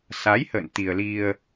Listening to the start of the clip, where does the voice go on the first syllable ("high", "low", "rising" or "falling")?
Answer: rising